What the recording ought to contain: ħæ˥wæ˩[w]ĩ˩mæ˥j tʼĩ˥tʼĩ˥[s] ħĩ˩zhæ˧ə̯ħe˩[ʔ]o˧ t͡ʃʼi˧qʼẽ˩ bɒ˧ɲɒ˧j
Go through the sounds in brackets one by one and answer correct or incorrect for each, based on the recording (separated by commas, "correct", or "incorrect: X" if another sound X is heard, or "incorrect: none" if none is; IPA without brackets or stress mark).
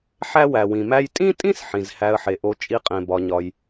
correct, correct, correct